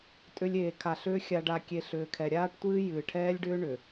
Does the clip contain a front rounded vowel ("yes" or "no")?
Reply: yes